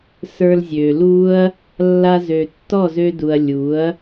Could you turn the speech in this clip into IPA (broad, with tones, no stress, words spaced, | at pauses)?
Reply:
sə˞˧lzʲø˨ lu˦ɐ̯ | lːa˧ zø˨tːɔ˦˨zø˧du˨ɐ̯ lʲu˨˦ɐ̯